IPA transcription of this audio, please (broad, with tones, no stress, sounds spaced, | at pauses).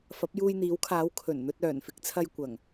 f ɐ˨˥ p̚ j uː˧ j n̪ iː˨˥ w kʰ aː˨˥ w kʰ ɵ˨˩ n n̪ ɵ˧ t̚ œː˨˩ n f ɪ˨˥ k̚ t͡sʰ ɐ˧ j kʷ ɐ˨˩ ŋ